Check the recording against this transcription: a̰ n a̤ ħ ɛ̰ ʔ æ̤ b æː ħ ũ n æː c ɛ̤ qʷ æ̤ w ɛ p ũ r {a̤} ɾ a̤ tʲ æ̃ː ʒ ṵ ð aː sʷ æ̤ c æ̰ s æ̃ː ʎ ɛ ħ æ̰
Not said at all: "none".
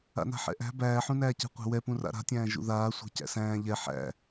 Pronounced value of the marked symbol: a̰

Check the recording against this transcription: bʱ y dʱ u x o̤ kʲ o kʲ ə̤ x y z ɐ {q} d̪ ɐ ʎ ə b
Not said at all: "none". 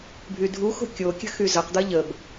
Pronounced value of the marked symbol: q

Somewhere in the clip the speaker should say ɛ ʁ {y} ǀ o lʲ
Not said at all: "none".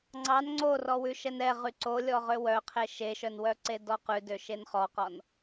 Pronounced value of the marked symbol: y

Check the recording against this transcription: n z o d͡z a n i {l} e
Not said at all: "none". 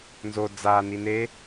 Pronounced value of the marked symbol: n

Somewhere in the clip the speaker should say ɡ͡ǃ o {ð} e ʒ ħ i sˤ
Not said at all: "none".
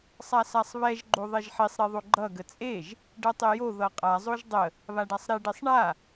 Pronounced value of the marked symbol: ðˤ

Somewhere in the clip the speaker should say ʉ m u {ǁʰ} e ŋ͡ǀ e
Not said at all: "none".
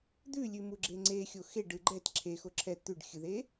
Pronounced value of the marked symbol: ɡ͡ǁ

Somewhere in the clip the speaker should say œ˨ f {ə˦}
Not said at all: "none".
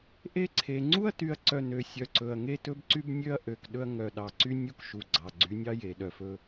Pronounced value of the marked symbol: ɵ˦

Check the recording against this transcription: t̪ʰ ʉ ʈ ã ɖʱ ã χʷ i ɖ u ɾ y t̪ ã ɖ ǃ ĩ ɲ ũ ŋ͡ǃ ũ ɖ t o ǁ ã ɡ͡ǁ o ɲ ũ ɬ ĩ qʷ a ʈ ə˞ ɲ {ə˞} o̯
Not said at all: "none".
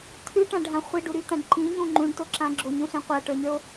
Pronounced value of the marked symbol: ə˞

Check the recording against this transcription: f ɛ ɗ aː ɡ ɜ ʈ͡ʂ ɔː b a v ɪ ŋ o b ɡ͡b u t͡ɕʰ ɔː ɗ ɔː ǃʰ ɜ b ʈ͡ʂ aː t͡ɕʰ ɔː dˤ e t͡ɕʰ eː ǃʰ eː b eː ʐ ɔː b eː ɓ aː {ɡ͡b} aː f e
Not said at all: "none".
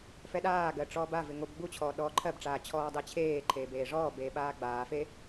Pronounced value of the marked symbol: ɡ͡b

